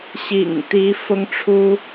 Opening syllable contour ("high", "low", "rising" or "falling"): low